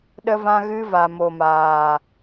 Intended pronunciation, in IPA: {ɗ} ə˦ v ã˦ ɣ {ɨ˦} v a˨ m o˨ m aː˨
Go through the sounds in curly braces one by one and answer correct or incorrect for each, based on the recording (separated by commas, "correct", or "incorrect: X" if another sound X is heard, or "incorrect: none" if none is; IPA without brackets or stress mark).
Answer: correct, correct